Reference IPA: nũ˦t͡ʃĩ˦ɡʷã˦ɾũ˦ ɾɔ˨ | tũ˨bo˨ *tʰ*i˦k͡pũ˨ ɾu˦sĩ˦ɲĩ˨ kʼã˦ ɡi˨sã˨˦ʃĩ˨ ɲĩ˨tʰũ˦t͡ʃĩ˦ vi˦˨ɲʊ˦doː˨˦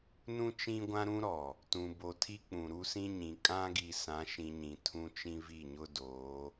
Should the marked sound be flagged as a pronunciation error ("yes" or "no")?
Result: no